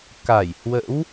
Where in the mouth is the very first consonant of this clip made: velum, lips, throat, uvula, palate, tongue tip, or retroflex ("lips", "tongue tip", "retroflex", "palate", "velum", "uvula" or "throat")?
velum